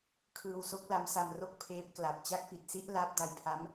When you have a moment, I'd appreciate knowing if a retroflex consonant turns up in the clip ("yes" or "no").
no